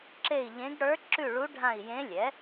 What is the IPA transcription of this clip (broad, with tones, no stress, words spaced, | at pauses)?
ǁe˦˨i̯ʎẽ˧˥ɡ ɽə˞˧˥ ǁʉ˦˨ɭu˧˥ ɖʱã˦˨i̯jẽ˧˥lʲɛ˩˥